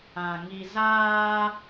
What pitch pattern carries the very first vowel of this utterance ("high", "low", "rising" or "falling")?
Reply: low